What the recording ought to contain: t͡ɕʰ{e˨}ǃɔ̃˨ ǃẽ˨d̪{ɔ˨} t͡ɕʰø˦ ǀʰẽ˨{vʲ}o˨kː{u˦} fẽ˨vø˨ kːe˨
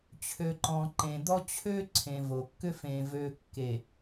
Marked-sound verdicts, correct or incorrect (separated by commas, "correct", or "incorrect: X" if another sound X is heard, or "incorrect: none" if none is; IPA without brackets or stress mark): incorrect: ø˨, incorrect: ɔ˦, incorrect: v, incorrect: ʏ˦